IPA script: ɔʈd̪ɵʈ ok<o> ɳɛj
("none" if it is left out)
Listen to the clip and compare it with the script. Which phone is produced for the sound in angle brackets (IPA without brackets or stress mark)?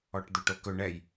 ɵ